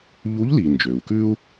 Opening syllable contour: rising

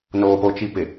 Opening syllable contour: low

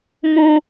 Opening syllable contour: low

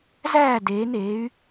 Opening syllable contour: falling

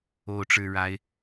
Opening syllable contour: rising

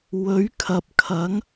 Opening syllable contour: rising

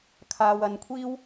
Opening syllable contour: low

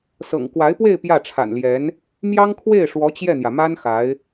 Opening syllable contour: low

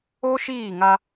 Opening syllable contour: high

